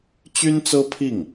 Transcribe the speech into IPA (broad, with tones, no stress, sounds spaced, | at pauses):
t͡ɕ y˥ n t͡s ɤ˥ pʰ i˥˩ ŋ